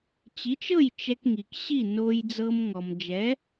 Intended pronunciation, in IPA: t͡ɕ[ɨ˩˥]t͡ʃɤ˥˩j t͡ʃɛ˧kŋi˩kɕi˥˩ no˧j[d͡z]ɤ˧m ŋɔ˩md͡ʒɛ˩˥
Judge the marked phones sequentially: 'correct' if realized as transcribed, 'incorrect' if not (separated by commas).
incorrect, correct